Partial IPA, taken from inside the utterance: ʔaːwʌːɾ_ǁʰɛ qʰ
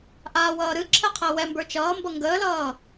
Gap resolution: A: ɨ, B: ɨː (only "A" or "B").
A